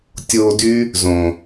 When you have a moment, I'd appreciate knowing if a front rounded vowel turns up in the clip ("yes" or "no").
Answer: yes